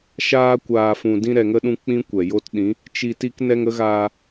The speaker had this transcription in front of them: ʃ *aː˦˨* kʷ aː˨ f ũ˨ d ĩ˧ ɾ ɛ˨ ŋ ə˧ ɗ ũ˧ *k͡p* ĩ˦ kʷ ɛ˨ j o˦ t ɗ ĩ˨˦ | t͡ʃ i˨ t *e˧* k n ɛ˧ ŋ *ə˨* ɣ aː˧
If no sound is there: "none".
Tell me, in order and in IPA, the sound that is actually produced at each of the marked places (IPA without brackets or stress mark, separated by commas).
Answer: aː˧, k͡p, i˧, ə˨˦